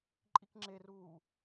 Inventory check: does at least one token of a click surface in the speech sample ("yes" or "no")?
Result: yes